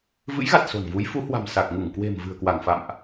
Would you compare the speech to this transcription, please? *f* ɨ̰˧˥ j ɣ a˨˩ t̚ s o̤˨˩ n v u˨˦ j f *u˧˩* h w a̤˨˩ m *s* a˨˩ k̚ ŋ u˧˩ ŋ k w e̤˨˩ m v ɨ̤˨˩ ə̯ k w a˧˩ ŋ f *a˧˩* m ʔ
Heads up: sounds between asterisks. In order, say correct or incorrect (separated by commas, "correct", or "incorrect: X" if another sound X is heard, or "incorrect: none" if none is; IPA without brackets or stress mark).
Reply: incorrect: v, incorrect: u˨˦, correct, incorrect: a̰˧˨